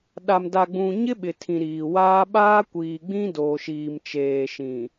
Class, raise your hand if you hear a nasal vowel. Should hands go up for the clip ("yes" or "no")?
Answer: yes